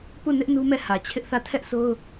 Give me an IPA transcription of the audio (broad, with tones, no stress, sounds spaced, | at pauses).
p u˦˨ n ɪ˦ ʔ n u˦ m ɛ˦˨ h ä˨ t͡ɕʰ ɪ˦ ʔ θ ä˦˨ tʰ ɛ˦ ʔ sʰ o˦ ʊ̯